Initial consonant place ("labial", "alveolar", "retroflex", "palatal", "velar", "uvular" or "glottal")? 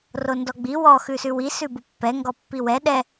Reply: alveolar